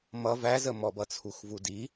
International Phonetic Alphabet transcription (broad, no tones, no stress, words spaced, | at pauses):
mʌ væzəmɔbʌ t͡sʰuxvudi